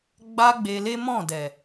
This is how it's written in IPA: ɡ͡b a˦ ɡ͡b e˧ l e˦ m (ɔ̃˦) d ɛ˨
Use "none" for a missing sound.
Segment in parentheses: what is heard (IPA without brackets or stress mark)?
ɔ̃˦˨